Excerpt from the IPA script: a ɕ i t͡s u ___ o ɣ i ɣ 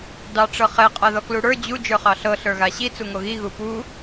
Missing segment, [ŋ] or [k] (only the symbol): ŋ